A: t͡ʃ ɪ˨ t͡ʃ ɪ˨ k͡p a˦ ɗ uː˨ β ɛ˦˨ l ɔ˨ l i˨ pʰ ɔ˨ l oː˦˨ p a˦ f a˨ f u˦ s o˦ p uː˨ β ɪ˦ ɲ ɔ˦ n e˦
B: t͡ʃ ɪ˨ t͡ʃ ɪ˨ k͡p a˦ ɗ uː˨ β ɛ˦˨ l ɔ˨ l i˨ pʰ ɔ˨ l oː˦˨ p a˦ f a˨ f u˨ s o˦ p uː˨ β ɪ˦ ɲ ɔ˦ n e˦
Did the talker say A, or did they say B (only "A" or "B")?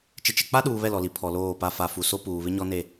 B